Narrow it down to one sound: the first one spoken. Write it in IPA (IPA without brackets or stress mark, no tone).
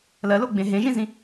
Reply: l